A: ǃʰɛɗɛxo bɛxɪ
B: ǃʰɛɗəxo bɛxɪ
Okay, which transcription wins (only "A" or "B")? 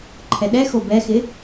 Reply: A